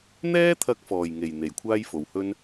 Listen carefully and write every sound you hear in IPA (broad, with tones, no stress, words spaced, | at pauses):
n̪ɛː˥t̪ʰɐ˧k̚fɔː˨˩jŋe˨˩j n̪e˨˩jkʷʰaː˥jfo˨whɵ˥n